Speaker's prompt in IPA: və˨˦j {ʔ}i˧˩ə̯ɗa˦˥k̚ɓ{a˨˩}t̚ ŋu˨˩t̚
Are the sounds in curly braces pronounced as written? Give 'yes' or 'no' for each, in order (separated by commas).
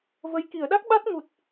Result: no, no